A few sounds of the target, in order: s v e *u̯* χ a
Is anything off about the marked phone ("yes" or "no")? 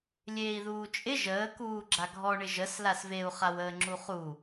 no